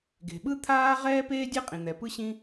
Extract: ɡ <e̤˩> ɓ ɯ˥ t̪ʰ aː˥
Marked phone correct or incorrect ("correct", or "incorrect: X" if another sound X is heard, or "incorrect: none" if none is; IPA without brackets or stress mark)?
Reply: correct